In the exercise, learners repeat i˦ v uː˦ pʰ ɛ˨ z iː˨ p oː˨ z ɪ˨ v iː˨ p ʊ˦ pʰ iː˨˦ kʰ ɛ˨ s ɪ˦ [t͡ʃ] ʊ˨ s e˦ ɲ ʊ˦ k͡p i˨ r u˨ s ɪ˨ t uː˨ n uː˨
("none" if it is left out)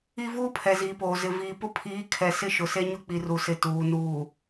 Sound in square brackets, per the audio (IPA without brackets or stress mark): ʃ